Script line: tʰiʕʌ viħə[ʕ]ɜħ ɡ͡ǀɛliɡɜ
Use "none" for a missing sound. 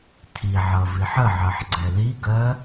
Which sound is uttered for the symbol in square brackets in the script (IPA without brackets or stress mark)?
ʕ